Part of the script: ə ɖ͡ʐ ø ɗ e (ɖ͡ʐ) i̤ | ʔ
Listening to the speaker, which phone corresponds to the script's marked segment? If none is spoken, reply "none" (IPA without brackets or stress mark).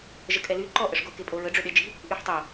d͡ʒ